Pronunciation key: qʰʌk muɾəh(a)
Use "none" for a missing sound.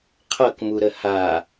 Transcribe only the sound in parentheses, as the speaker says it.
a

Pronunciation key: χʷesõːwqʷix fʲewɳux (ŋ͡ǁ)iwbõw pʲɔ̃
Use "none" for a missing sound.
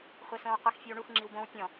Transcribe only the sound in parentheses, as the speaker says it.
ŋ͡ǁ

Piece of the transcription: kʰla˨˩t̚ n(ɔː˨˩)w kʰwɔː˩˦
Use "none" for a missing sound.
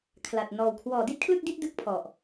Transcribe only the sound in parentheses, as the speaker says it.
ɔː˨˩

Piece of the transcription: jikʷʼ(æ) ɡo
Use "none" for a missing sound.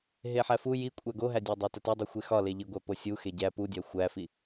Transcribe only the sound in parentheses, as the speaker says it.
æ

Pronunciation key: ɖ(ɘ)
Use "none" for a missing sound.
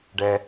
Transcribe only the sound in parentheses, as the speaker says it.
ɛ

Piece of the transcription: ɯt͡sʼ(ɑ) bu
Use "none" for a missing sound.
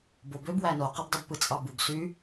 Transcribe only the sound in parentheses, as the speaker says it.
ɑ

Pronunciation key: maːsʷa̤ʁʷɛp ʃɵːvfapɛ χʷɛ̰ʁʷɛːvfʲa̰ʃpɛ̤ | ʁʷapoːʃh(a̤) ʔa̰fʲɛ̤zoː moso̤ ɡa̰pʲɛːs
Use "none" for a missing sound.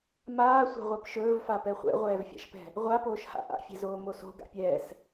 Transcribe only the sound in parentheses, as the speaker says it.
a̰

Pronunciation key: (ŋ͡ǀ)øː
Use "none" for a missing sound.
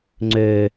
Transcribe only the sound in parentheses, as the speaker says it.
ŋ͡ǀ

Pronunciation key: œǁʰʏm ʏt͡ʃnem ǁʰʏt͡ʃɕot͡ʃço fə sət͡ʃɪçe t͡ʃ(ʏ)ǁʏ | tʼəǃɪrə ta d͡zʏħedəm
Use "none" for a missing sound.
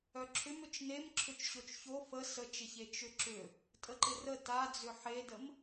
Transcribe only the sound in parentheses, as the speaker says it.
ʏ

